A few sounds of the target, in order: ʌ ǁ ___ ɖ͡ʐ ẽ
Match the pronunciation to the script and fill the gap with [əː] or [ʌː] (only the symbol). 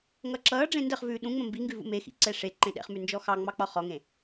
ʌː